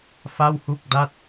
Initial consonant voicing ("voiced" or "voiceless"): voiceless